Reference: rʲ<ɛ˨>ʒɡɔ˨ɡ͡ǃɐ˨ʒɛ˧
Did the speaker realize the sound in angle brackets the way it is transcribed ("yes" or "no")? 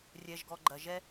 yes